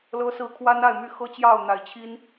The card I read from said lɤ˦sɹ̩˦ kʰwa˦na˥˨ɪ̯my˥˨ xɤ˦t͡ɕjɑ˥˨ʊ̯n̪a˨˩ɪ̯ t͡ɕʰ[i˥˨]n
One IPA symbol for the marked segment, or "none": i˦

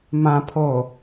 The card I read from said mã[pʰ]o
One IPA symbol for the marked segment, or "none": pʰ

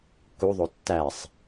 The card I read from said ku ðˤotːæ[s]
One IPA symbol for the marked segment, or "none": sˤ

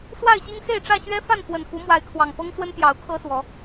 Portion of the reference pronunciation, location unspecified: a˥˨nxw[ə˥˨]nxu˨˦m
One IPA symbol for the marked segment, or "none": ə˨˩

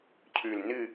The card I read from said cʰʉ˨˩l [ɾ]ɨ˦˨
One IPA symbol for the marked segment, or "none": n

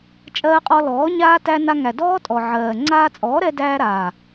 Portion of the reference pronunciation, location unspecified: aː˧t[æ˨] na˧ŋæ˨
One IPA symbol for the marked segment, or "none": æ˧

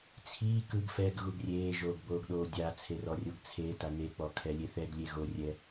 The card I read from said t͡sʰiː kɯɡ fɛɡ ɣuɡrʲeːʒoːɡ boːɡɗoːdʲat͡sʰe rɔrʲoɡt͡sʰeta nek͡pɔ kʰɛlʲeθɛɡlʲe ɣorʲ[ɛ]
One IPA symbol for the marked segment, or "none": ɛ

